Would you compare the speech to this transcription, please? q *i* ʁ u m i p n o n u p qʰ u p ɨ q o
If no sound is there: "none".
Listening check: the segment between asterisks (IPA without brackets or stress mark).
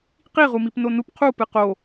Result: i